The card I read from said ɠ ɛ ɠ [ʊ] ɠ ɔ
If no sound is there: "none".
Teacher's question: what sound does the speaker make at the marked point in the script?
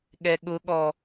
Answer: ʊ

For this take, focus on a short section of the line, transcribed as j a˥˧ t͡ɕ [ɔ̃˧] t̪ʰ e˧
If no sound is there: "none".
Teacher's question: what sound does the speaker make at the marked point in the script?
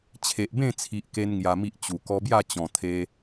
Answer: ɔ̃˨˩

